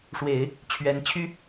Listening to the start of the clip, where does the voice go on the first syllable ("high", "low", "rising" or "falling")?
low